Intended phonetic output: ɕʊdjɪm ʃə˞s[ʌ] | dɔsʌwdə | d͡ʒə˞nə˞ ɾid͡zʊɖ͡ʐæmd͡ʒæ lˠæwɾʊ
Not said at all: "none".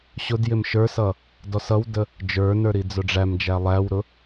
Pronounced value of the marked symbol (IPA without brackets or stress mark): ʌ